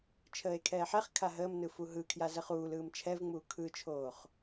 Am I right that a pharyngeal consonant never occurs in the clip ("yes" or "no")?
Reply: no